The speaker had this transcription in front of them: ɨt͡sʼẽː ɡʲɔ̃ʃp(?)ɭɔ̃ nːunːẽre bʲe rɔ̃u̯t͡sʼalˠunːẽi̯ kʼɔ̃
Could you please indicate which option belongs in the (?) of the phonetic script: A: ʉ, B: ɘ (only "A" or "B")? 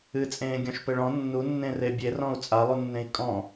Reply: B